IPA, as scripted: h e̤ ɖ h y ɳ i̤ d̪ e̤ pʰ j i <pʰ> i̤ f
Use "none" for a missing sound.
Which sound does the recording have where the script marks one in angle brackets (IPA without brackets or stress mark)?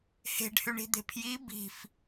b